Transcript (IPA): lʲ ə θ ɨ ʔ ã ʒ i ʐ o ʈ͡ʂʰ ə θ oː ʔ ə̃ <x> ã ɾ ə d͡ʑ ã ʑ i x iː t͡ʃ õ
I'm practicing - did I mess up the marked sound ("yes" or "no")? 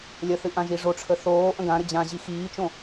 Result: yes